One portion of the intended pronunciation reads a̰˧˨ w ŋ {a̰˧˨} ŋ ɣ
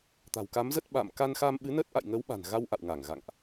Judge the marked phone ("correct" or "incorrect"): incorrect